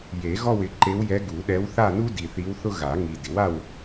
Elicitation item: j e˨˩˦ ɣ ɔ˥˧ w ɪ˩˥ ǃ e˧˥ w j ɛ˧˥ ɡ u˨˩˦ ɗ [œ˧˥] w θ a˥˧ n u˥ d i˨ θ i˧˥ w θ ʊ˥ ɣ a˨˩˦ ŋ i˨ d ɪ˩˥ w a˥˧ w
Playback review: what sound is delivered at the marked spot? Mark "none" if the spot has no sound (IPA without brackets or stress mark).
ɛ˧˥